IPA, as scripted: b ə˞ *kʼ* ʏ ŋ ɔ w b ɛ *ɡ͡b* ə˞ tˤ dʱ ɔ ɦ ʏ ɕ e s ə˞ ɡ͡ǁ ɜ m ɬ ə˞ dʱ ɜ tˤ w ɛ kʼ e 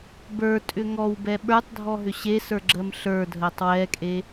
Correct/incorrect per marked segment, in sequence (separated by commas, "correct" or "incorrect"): incorrect, incorrect